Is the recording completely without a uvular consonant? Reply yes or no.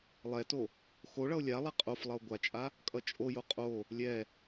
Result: no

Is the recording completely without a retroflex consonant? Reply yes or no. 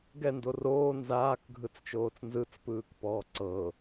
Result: yes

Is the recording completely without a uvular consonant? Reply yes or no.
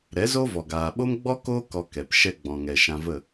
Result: yes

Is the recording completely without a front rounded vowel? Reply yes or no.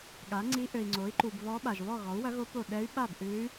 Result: no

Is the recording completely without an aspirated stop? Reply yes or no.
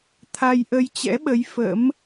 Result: no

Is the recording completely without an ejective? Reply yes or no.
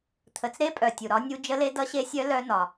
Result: no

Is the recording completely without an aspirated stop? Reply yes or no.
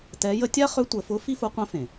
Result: yes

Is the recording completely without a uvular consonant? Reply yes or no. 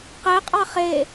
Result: no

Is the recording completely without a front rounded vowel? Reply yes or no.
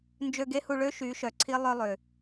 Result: no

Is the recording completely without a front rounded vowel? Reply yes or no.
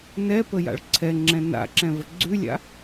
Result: yes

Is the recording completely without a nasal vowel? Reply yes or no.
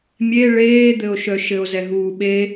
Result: yes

